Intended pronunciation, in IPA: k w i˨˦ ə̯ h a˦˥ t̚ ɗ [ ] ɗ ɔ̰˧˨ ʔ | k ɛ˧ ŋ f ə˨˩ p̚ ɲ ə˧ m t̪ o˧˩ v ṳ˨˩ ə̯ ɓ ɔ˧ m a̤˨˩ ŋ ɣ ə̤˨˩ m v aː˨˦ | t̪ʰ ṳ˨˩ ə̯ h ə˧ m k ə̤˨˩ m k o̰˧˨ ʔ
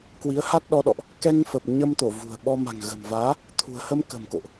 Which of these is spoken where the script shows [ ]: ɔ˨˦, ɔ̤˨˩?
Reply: ɔ˨˦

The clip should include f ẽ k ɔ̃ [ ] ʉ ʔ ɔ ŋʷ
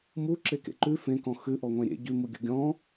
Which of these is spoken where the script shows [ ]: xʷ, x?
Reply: x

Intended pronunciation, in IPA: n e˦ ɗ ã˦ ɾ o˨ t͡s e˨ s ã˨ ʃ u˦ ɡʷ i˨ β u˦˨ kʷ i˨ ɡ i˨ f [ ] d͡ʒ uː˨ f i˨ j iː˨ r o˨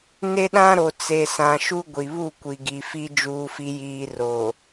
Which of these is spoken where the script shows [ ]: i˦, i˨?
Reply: i˦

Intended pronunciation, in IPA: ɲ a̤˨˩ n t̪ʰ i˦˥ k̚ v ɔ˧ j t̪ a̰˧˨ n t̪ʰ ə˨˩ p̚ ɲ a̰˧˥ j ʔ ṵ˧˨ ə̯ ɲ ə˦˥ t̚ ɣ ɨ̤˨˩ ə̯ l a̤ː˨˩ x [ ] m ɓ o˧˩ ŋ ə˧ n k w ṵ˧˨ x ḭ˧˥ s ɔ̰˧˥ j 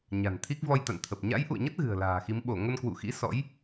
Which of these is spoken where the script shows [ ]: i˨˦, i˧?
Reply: i˨˦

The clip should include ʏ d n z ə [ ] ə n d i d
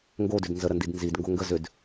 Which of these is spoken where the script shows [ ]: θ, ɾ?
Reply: ɾ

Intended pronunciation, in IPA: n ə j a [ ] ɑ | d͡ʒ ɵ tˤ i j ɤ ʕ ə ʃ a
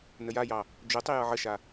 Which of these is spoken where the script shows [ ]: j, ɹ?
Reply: j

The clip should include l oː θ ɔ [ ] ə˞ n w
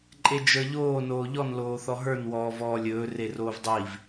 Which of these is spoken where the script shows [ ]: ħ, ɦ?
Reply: ɦ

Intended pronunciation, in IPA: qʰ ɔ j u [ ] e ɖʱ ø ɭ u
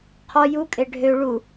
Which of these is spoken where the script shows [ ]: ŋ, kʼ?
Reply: kʼ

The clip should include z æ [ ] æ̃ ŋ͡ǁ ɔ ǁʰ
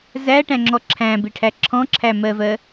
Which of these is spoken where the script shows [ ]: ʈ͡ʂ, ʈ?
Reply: ʈ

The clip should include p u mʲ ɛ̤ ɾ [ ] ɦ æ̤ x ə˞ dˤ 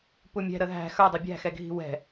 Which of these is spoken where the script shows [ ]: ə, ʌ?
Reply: ə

